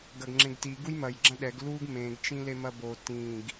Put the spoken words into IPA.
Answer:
ɡɐɡŋ͡ǁẽɡti ɡujmɐj ɡ͡ǁɐ̃ɗɛɡ luɡ mẽɡ t͡ʃĩlemɐbo tĩɡ

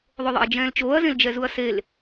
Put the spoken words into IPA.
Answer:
ðˤoðˤɛ̰ɐ̯d͡ʒɛ̃ːlt͡ʃoːɐ̯ zẽld͡ʒɛzuɐ̯sel

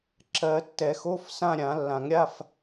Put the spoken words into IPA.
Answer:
ǁɜ˨˩˦tːɛ˨˩˦xo˧˥˧fsã˥˧ ɾʲã˨˩˦ lːã˨˩˦ŋɾʲa˧˥˧f

